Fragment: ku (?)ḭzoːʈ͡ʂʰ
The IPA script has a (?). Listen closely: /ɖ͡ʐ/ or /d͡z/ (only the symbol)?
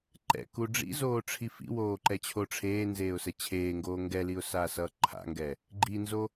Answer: ɖ͡ʐ